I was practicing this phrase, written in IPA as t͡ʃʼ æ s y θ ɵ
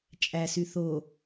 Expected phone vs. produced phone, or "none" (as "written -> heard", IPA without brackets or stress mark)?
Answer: ɵ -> o